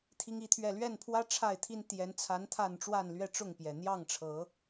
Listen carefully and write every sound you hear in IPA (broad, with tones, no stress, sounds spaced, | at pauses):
t̪ʰ i˦ ŋ i˦ t̪ʰ ɥ ɛ˥˨ l ɥ ɛ˥˨ n pʰ w ä˦ ʈ͡ʂʰ a˥˨ ɪ̯ t̪ʰ i˦ n t̪ j ɛ˨˦ n t͡sʰ a˨˦ n t̪ʰ a˥˨ n ʈ͡ʂ w a˥˨ n l ɥ ɛ˥˨ ʈ͡ʂ ʊ˥˨ ŋ p j ɛ˨˩ n̪ j ɑ˥˨ ŋ ʈ͡ʂʰ ɤ˨˦